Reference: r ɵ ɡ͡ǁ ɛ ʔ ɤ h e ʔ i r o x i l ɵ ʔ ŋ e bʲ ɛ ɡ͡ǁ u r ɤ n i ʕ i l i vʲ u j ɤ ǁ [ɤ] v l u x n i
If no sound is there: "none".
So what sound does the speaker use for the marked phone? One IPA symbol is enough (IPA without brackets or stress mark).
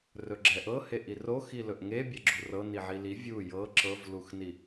ɤ